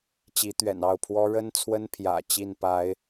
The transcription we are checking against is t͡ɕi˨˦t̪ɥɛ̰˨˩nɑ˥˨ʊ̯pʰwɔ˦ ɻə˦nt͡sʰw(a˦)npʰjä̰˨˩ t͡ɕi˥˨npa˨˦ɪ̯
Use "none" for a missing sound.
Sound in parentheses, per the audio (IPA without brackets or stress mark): ə˦